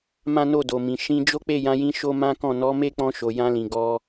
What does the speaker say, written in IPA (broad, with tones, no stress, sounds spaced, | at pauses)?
m ã˦ n o˦˨ d o˨ m ĩ˨ ʃ ĩ˧ d͡ʒ o˦ k͡p e˦˨ j ã˧ j ĩ˧ ʃ o˦ m ã˦ k ɔ̃˦˨ n ɔ˨˦ m e˦ k͡p ɔ̃˧ ʃ o˨ j ã˧ l ĩ˨ ɡ ɔ˧